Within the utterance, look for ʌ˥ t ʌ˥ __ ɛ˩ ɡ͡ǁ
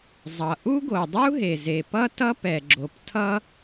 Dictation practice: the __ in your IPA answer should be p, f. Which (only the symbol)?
p